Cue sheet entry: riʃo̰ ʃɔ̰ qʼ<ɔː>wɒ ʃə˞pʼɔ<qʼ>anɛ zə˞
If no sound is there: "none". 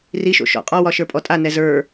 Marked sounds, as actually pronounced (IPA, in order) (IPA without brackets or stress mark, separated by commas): ɔ, tʼ